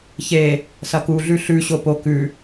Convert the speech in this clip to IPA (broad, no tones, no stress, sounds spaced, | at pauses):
ç e | s ɐ k u ɮ ʉ ɬ ʉ ɕ o p o k ʉ